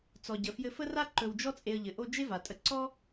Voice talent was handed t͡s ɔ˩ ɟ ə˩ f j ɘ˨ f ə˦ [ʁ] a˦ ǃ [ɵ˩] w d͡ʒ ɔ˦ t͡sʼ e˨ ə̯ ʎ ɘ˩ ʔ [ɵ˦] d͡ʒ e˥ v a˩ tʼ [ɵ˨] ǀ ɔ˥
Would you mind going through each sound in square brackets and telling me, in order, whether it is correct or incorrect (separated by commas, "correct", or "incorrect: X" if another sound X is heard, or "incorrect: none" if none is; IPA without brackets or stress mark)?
incorrect: r, incorrect: ɵ˨, incorrect: o˦, incorrect: ə˨